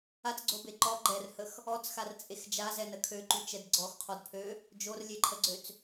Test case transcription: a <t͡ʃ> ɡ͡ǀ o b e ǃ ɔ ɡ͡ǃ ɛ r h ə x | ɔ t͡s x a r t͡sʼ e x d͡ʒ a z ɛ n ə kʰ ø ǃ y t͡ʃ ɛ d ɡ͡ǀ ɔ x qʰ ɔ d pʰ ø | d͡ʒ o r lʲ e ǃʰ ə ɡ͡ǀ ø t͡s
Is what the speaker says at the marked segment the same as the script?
no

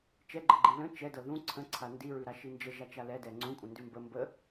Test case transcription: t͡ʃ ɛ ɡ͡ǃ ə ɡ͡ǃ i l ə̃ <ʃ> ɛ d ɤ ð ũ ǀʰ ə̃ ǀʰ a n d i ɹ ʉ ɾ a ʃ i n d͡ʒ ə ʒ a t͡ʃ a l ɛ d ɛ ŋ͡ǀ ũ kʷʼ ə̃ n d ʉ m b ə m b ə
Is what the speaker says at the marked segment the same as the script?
no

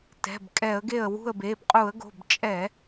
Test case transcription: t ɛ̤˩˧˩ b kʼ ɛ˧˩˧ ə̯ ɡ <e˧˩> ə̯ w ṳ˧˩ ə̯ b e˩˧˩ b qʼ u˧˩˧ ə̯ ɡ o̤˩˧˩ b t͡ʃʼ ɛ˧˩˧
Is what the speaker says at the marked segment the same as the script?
yes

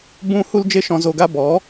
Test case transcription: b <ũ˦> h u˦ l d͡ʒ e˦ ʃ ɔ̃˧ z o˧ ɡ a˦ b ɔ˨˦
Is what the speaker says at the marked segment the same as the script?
no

